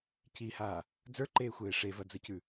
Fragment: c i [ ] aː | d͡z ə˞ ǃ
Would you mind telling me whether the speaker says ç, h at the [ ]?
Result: h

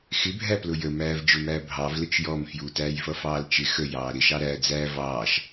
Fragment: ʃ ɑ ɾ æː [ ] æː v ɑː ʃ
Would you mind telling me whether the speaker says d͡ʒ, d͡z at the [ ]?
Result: d͡z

